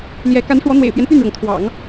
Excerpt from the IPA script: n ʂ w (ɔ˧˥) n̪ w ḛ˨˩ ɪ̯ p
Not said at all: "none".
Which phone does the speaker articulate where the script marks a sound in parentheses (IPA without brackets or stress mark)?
ɔ˧˥